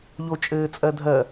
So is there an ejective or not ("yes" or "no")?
yes